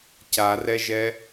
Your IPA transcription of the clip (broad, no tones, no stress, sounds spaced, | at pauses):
c a r ɛ ʒ ɛ